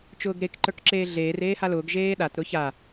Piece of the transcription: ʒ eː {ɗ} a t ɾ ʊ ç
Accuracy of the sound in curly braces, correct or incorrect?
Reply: correct